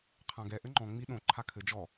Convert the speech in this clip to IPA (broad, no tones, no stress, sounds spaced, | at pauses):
qʰ ã ɡ ɛ ʔ ɘ ŋ͡ǃ ɔ̃ ŋ͡m i ɗ õ ǃʰ a kʰ ɘ d͡ʒ ɔ